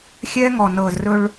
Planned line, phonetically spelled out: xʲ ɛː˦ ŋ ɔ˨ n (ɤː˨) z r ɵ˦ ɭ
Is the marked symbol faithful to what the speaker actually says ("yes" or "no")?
yes